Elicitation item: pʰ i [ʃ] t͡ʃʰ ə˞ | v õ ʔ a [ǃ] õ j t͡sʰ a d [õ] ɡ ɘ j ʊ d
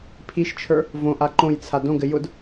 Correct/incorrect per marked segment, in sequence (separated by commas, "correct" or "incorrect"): correct, correct, correct